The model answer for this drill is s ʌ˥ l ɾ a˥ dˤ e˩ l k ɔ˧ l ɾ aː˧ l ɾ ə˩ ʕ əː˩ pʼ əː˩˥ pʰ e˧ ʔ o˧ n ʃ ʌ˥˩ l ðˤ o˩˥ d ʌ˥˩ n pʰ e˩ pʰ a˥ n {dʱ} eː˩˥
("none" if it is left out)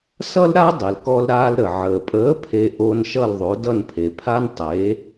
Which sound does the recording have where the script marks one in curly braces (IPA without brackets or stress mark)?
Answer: tˤ